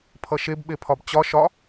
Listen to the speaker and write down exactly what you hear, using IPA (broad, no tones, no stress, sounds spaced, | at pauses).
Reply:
pʰ ʌ ʃ e b ɓ e pʰ ɒ b t͡ɕ ɒ ʃ ɒ